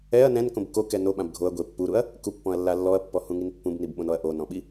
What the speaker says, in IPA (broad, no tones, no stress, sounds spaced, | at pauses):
ɛ ɐ̯ n ɛ̃ n k õ b k o k ɛ n o ɓ ã b ɡʱ o ɐ̯ ɡʷ e pː u ɾ u ɐ̯ | k u pː ɔ̃ ɐ̯ lː a lː ɔ ɐ̯ pː ɔ h ũ ŋ i n pː ũ b n i b ɓ õ n ɔ ɐ̯ ʔ o n ɔ̃ ɓ i